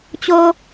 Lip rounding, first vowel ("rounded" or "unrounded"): rounded